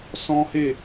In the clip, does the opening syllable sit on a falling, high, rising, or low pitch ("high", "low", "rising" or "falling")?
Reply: high